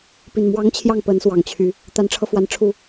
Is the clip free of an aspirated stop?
no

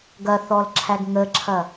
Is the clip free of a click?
no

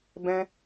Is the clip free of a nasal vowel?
no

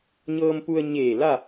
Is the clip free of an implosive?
yes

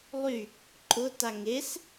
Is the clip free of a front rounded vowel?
no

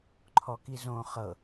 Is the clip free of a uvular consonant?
no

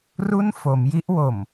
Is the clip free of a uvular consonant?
yes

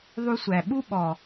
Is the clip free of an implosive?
no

